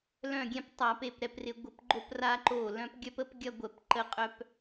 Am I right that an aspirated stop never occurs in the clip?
yes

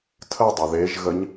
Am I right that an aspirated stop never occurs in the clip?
no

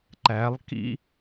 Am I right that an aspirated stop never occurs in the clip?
yes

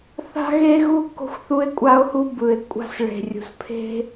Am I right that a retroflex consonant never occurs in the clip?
no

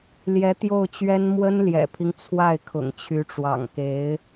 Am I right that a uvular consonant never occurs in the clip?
yes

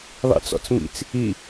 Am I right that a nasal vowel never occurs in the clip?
yes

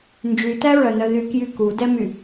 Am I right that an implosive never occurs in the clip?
yes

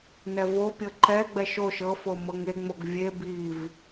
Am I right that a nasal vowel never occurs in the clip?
yes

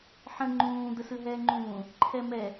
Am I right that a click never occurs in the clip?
no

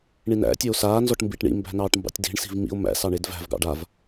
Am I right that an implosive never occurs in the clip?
yes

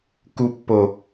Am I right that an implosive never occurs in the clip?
yes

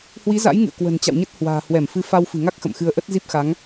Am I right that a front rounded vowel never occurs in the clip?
yes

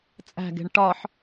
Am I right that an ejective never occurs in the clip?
no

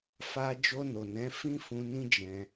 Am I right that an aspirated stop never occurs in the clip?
yes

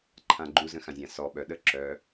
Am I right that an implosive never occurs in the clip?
no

